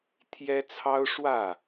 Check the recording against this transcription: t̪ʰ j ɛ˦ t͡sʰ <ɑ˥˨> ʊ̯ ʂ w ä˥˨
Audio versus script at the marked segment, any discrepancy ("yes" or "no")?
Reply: yes